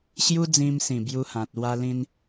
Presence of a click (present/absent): absent